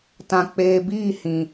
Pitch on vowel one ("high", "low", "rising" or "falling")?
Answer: low